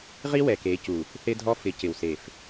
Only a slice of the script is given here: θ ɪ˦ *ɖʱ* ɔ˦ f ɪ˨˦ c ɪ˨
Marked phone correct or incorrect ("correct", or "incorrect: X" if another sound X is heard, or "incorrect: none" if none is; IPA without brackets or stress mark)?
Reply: incorrect: dʱ